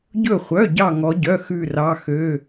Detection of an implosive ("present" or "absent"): absent